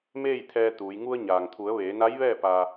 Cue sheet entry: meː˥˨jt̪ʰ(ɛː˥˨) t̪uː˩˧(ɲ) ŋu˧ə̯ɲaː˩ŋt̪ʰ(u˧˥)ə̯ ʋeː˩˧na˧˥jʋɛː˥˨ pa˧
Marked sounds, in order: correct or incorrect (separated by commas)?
incorrect, incorrect, incorrect